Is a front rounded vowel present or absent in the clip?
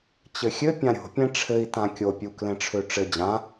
present